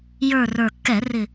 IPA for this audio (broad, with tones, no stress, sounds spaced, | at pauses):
j ə˞˨˩ r ə˞˨˩ kː ɛ˧˩˧ r ɪ˨˩